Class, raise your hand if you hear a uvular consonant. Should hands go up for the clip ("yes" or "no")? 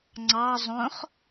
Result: yes